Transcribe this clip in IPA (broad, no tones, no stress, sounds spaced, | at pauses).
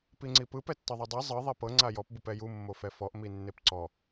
p i ŋ͡ǀ i p ɯ p ɛ tː ɤ ðˤ o dˤ i zˤ ɯ ðˤ i p ɤ ŋ͡ǀ a j ɔ p b ɯ p ɛ j u mː o f ɛ f ɔ ʔ m i nː e p ǀ ɔ